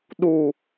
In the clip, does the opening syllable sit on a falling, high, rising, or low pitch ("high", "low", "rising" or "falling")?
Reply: low